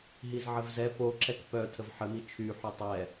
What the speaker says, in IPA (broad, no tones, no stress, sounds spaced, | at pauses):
ɦ i z ʕ ə v z ɛ p o ǁ ɛ k p œ tʰ ə v ħ ə m i t͡ʃʰ y ħ y tˤ ɛ